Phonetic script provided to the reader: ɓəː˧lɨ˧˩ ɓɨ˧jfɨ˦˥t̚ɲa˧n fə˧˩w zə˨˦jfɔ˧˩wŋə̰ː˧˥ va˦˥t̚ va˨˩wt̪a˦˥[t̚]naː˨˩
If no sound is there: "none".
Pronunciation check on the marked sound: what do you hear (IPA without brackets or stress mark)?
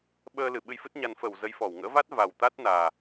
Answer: t̚